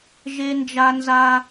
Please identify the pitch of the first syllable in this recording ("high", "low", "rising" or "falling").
high